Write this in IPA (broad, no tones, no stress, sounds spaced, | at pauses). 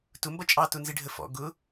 t ʊ m b ʌ t͡ʃʼ ɑ t ʊ n z ɪ ɖʱ ə f ɔ̰ ɡ ʊ